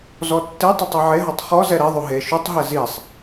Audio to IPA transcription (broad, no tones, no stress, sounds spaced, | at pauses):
z ɔ tː e tˤ ɛ tˤ ɛ ʕ e ɦ ɔ tˤ χ ɔ z ɛ ɾ ɛ ðˤ u ɦ e ʃ u tˤ ɦ ɛ z i sˤ